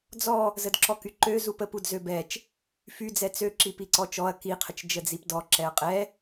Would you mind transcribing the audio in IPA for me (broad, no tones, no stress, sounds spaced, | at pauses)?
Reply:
d͡z ɔ | z ə d ǁ ɔ k y ǃ ø z u p ə p u d z ø b ɛ t͡ʃ | f y d͡z ɛ t͡s ø ǁ i p i ǀ ɔ t͡ʃ ɔ ɐ̯ k i qʰ ə t͡ʃ d͡ʒ ə d͡z i p d ɔ ǁ ɛ ɐ̯ qʼ ɛ